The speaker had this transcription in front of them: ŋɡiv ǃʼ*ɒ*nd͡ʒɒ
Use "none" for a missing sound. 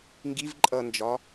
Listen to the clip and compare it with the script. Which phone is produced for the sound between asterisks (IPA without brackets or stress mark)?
ʌ